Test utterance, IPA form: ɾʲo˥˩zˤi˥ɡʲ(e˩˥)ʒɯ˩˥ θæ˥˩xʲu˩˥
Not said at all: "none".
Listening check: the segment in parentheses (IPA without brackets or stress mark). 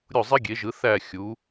e˩˥